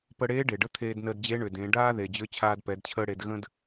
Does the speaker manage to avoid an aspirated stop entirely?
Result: no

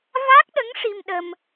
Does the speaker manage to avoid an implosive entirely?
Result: no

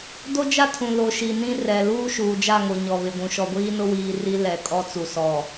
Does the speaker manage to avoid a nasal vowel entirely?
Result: no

